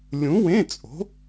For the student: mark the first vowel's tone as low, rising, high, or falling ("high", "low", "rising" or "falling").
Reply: rising